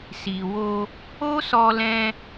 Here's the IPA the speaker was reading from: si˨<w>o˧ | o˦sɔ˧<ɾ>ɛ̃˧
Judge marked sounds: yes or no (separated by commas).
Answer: yes, no